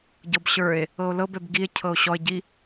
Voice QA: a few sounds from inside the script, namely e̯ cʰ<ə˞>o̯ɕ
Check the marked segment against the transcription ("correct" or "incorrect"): incorrect